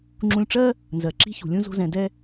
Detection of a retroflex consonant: present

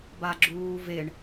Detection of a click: present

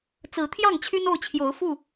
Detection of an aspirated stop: present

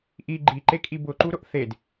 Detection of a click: present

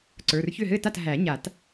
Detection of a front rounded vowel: present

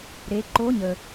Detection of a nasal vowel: absent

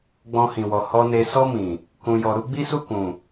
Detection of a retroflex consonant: absent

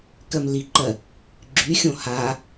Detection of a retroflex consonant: absent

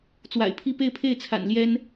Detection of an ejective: absent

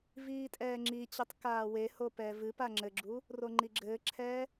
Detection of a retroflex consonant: absent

